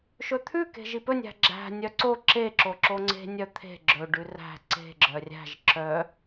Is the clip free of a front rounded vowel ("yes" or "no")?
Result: no